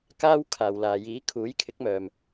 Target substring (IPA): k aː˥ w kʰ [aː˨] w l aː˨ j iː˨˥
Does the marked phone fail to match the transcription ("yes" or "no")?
no